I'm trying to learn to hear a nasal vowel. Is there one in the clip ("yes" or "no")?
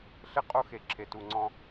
yes